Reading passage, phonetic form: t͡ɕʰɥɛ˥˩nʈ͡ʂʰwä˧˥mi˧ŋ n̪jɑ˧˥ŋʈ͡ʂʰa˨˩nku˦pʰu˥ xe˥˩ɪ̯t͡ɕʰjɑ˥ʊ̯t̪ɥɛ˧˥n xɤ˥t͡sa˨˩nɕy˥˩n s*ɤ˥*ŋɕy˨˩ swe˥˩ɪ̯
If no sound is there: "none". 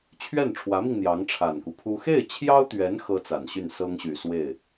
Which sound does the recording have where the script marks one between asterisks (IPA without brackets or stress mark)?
ɤ˥